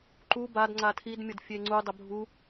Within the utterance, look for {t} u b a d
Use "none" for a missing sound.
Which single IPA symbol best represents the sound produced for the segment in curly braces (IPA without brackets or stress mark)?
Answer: ǃ